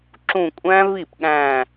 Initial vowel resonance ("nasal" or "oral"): nasal